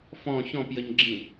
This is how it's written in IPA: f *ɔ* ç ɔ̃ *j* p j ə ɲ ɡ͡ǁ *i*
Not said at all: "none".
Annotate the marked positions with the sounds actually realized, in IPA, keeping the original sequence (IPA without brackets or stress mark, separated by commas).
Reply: ɔ̃, none, ĩ